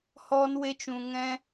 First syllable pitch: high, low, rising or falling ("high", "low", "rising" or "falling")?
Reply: high